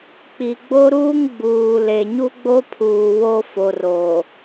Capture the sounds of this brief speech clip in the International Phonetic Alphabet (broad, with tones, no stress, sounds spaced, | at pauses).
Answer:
k͡p i˨ ɡ͡b o˦ ɾ uː˦ ŋ ɡ͡b uː˨ l e˨ ɲ u˦ ɡ͡b o˦ pʰ uː˨ w o˦ f o˨ r o˨